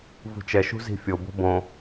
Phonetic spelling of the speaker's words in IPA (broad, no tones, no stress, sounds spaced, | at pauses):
v ṳ t͡ʃ ɛ ʃ ṳ z i̤ fʲ o b o̤ b õ